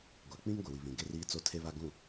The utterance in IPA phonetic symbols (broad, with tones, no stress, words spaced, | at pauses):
ɡʷa˨k͡pĩ˦ŋ ɡʷɪ˨wi˨βĩ˨ ɡe˦riː˦t͡so˦ tʰe˦βa˦ɡũ˦˨